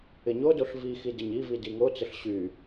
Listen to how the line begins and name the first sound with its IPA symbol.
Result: ɪ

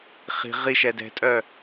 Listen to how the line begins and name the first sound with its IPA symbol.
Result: χ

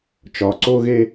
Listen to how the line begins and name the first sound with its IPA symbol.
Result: t͡ʃ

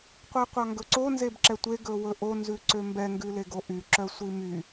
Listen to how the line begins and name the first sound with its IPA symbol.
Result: qʷ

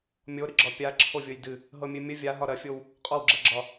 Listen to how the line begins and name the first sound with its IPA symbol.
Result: mʲ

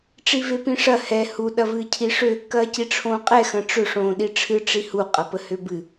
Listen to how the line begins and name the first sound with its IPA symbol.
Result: ʈ͡ʂ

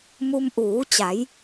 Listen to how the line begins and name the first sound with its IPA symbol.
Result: m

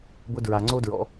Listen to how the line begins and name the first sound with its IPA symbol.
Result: b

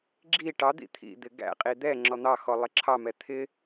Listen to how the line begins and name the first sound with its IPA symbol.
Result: ɡ͡ǁ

